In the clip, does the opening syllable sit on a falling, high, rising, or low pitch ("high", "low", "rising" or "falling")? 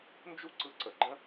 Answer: high